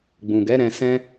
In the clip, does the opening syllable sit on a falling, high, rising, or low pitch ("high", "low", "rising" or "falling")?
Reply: low